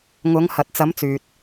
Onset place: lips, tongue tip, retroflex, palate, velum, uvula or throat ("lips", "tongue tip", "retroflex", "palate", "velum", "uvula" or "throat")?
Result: velum